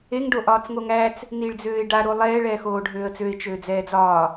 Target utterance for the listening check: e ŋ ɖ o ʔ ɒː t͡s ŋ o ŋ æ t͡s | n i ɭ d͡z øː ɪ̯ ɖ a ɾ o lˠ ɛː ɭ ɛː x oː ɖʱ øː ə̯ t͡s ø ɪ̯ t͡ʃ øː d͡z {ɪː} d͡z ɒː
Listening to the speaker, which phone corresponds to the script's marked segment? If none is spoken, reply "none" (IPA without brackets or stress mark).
ɛː